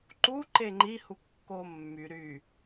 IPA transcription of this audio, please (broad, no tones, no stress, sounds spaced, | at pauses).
ǃ u ǃ e ŋ͡ǃ i h u kː o mː y ɾ y